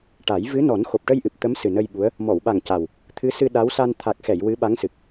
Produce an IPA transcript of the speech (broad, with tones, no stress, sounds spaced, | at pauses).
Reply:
ʈ a˨˩˦ j v ɨ˧˥ n ɔ˨˩˦ n x o˨˩ p̚ ʈ ə˧ j ʔ ɨ˨˩ p̚ t̪ ə˧˥ m s ɨ˨˩ n ə˧ j ɓ u˧˥ ə̯ | m ɔ˨˩˨ w ɓ a˨˩ ŋ c a˨˩ w | t̪ʰ ɨ˧˥ s ɨ˧ ɗ a˧˥ w s a˧ n t̪ʰ a˨˩ k̚ x ɛ˨˩˨ j w ɨ˧˥ ɓ a˧˥ ŋ s ɨ˨˩ k̚